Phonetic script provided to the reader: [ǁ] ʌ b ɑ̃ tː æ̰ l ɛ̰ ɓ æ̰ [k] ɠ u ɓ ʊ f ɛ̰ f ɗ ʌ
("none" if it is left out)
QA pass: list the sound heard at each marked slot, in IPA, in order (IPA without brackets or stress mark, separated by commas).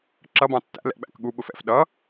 ǁ, k